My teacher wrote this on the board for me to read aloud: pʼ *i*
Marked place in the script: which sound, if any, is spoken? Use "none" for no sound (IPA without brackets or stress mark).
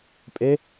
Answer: e